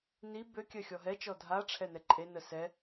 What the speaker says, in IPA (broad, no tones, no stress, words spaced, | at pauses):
ni bø kʲœxʲɔɦɛt͡ʃɔ dʱa ʈ͡ʂʰɛnɛǃʼenə sɛ